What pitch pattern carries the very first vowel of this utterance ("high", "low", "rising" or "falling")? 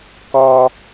high